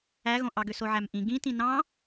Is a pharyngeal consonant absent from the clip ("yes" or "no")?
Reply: no